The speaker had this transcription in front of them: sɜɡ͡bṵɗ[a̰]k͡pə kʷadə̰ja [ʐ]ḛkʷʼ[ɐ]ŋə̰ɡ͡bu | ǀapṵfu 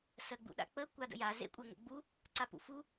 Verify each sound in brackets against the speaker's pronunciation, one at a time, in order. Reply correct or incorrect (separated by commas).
correct, incorrect, correct